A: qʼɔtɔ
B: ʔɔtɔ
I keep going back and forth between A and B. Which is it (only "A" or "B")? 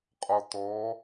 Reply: A